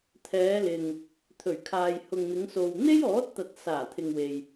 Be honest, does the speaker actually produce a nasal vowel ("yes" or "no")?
no